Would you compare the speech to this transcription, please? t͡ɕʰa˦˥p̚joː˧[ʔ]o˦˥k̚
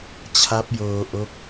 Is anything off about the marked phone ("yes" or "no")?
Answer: no